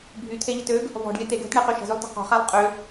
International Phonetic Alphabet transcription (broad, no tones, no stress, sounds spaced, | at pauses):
bʱ y t̪ʰ e ʎ ə t ø ɡ | v ɔ̤ ɖ lʲ ə t̪ e ɡ l ə̤ t ɳ e q y ʃ ə̤ z ʏ lˠ t ə̤ q ɔ̤ χ a lˠ qʼ ʏ